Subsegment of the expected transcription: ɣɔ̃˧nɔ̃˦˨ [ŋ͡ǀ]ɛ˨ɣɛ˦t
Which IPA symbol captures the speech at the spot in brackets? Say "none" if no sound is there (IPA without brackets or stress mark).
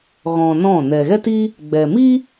n